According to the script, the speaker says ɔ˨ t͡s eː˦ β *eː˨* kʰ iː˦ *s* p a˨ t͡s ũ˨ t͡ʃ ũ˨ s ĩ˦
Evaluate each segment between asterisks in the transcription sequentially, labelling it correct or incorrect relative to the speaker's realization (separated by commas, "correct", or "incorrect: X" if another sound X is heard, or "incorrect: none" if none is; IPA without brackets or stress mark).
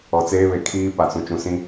incorrect: e˨, incorrect: none